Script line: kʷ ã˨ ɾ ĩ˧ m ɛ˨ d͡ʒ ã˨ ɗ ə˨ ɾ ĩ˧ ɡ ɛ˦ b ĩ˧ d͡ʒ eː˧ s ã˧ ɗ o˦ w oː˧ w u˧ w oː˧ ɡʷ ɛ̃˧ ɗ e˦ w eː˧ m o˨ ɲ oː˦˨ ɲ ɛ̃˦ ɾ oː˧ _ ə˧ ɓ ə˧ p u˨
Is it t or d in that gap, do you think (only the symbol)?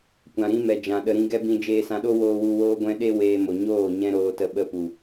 t